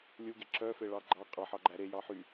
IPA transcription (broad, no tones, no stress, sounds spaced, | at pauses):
lʲ u ɡ e ǁ œ f e ɭ ɑ ɡ͡ǃ ɑ qʼ ɑ ħ ɑ ɡ͡ǃ æ ɾ e j ɑ ħ y